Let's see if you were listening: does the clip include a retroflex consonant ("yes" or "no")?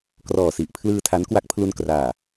no